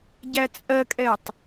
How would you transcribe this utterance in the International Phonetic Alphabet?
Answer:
ɟæt͡sʼɜkʼɛtˤ

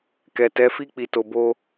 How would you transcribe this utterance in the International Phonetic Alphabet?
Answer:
kɛ˨tɛ˨˦fi˦ k͡pi˧to˧bo˦

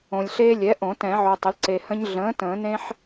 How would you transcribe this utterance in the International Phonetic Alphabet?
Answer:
õ˨lʲɬeː˦lʲɛ˩˥ʔõ˨˩˦ tɛ̃˨˩˦ʕo˨tˤə˩˥l ǀe˨hə̃˦ɲ ɮə̃ː˩˥ tə̃ː˨˩˦nẽ˦ħ

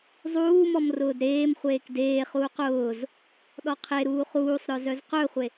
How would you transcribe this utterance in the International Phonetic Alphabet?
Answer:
zˤuːmɔm rʊːdɾeːmχʷeːk deːχuːq ʊːz | ɗɔqʰeɾuː χuːsˤɾœ zœzqœχʷe

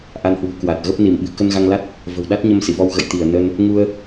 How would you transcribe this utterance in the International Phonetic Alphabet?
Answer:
ʔa˧nhwṳ˨˩ kwa˨˩t̚ɣə˦˥p̚ ni˧˩mɓɨ̤˨˩ kə˧nɣa˧ŋla˦˥t̚ | və̤˨˩wɗa˦˥t̚ɲə˧msḭ˧˨ vɔ˧wɣə̰˧˨j t̪i˧˩ə̯nə˧n | ŋu˧ə̯

